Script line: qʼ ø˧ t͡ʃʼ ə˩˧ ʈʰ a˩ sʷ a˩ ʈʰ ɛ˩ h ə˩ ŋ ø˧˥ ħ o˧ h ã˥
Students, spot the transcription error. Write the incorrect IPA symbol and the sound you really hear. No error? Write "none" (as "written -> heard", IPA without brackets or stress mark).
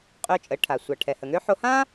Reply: none